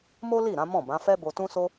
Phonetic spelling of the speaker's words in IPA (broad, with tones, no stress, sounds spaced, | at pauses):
m o˦ l i˦˨ ɾ ã˨˦ m ɔ̃˦˨ b ã˨˦ f ɛ˦ b o˧ t ũ˦ s o˦